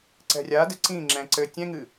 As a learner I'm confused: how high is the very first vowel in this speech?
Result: mid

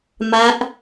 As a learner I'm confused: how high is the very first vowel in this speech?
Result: low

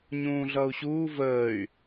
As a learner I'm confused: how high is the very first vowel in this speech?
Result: high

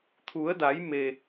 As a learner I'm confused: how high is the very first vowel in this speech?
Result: high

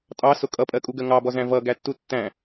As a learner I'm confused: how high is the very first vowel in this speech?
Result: low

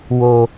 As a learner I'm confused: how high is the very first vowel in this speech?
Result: mid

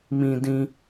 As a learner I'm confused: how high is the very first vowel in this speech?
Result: high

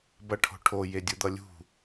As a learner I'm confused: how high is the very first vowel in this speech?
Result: mid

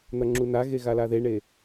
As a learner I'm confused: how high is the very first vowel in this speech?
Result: low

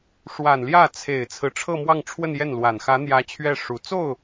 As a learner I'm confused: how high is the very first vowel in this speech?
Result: low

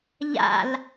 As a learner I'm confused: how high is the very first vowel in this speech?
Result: low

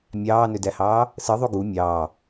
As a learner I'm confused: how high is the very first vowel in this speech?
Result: low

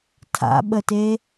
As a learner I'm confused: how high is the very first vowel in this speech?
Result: low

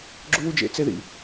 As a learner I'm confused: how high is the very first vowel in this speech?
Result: high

